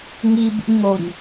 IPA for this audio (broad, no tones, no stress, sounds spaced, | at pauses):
ŋ i b ṵ ɲ ŋ o ɲ